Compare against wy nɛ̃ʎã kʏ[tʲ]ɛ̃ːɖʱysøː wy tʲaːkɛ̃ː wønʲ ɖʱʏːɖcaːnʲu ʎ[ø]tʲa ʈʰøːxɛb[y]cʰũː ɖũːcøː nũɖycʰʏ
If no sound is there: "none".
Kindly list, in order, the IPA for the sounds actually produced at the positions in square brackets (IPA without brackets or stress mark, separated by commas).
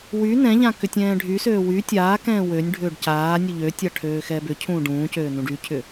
tʲ, ø, ʏ